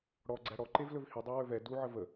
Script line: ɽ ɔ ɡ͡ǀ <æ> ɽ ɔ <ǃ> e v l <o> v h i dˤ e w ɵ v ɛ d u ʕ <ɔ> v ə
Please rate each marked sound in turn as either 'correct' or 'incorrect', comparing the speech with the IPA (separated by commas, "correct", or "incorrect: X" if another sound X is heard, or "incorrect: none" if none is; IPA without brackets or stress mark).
correct, correct, incorrect: ɵ, incorrect: ə